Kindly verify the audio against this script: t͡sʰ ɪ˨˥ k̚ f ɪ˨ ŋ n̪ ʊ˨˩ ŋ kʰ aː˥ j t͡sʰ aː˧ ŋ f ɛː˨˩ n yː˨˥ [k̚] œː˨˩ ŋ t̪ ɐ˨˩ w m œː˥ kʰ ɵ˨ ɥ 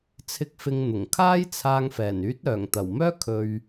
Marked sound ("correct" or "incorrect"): incorrect